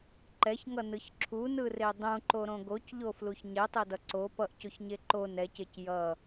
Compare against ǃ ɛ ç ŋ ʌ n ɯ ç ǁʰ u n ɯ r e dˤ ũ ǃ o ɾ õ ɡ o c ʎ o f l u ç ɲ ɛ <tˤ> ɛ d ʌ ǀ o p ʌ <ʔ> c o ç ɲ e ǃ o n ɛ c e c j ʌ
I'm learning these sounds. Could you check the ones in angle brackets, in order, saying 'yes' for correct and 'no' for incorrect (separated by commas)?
yes, yes